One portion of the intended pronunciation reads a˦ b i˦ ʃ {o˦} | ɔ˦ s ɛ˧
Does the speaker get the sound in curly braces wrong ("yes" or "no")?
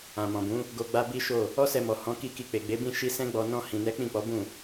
yes